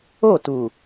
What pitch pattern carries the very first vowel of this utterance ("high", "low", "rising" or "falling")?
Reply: falling